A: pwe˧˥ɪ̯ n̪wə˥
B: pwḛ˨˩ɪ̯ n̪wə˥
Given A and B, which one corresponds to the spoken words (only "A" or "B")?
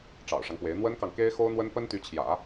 A